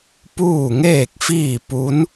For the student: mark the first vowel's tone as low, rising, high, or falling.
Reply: falling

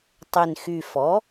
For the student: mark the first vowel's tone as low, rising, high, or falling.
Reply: low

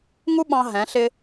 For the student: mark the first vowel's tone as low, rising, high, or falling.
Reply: high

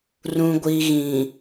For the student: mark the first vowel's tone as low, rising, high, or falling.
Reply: low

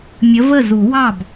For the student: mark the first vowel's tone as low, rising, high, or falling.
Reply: rising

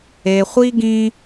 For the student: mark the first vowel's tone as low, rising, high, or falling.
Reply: low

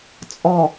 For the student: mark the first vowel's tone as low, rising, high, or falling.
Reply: low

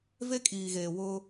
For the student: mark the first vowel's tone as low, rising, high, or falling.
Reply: high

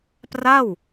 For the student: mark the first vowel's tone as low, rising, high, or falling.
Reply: falling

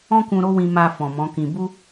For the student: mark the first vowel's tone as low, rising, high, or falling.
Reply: high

